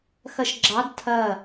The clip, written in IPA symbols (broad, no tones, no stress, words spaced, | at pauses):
xɐʃɡ͡ǁɑd tʰɐ